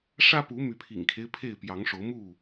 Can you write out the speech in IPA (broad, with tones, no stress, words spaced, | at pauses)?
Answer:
ʂä˦pu˨˦ my˨˦pʰḭ˨˩ŋkʰe˦ɪ̯ pʰe˥˨ɪ̯pjɑ˨˦ŋʂo˨˦ʊ̯ mu˥˨